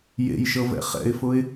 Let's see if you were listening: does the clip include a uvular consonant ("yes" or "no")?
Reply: yes